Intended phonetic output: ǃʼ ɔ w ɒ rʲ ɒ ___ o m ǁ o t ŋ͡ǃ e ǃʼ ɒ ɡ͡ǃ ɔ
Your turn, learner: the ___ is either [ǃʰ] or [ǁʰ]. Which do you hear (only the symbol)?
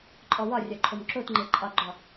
ǃʰ